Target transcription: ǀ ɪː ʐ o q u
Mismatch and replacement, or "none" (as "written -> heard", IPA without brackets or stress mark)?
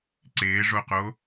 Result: u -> o